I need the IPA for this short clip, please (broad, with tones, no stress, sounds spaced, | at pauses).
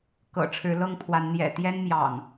k ɤ̰˨˩ ʈ͡ʂʰ ɻ̩˨˦ l ɤ˥˨ ŋ pʰ w a˨˦ n n̪ j ɛ̰˨˩ t̪ j ɛ˦ n m j ɑ̰˨˩ ŋ